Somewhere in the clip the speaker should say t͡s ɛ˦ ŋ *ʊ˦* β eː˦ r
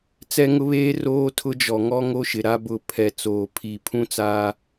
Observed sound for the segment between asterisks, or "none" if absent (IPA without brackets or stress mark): ʊ˦